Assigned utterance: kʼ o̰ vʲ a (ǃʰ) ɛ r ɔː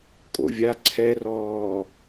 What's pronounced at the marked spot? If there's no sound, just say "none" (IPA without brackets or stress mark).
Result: ǀʰ